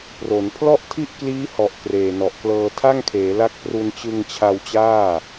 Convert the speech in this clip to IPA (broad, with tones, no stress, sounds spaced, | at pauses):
p r o˩˦ n pʰ l ɔ˥˩ ʔ tʰ i˥˩ ʔ k l iː˦˥ h ɔ˨˩ ʔ k r eː˨˩ n ɔ˨˩ ʔ k l ɤː˧ tʰ a˥˩ ŋ kʰ eː˩˦ l a˦˥ k̚ p r u˧ n t͡ɕ ɯ˧ ŋ t͡ɕʰ a˧ w t͡ɕ aː˥˩